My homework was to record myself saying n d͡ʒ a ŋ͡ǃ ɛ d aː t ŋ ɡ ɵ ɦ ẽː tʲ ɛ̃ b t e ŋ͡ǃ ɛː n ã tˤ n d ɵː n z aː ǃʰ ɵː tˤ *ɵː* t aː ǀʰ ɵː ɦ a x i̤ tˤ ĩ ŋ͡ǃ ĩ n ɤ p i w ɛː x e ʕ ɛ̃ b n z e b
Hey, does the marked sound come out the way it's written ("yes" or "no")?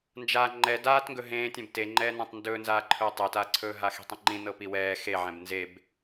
yes